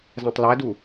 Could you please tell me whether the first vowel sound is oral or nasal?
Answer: nasal